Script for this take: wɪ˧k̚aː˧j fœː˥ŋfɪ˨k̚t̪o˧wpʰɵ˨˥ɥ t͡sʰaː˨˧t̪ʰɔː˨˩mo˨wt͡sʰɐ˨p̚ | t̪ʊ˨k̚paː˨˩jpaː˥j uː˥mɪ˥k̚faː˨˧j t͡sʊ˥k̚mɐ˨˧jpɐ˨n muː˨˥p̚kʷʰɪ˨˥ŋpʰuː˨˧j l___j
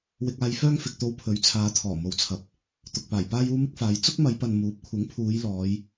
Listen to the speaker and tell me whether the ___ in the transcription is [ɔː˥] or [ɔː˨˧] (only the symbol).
ɔː˨˧